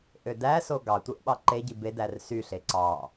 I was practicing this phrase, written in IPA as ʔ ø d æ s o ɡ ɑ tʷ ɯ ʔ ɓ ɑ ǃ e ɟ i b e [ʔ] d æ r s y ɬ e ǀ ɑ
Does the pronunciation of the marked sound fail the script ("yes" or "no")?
yes